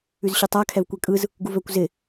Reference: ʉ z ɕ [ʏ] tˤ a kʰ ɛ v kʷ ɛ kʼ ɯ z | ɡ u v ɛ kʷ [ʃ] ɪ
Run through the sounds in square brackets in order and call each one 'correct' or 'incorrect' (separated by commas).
correct, incorrect